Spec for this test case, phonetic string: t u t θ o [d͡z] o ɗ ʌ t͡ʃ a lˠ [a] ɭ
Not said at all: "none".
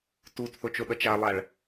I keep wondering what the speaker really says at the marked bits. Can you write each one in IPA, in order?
t͡ʃ, a

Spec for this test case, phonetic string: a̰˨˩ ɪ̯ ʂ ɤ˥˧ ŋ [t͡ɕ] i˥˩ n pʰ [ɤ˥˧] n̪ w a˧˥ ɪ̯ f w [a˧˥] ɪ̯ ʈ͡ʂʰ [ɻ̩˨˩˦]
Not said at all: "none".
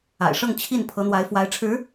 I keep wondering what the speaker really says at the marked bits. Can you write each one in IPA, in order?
t͡ɕʰ, ɤ˧˥, a˧˥, ɻ̩˧˥

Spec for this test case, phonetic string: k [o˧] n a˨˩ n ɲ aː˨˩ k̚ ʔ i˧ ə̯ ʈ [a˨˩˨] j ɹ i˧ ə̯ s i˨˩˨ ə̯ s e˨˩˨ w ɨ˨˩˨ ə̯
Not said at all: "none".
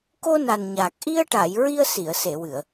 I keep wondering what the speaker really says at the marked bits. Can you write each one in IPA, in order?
o˧, a˨˩˨

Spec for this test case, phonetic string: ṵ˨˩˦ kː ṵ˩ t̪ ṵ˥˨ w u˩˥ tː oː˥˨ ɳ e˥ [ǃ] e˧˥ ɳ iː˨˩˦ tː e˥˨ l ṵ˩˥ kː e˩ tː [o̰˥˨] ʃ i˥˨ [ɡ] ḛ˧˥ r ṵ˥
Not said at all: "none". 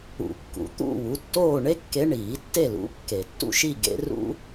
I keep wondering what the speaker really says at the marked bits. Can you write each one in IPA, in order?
kː, ṵ˥˨, ɡ

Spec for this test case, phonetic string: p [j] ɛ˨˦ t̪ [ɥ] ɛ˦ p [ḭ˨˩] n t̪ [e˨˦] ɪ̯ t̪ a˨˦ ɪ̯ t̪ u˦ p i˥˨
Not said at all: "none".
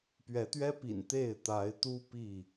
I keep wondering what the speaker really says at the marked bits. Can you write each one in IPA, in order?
ɥ, ɥ, ḭ˨˩, e˥˨

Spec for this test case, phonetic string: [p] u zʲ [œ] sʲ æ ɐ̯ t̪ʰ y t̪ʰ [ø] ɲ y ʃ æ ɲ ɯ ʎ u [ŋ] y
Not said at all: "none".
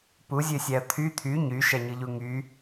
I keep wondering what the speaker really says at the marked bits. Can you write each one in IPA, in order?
p, ø, y, ŋ

